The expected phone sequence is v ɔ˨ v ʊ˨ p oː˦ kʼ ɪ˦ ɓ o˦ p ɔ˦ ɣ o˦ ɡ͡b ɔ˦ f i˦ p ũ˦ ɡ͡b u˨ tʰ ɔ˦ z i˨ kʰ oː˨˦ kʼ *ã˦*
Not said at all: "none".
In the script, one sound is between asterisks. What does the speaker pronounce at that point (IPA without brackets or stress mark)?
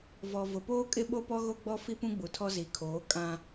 ã˨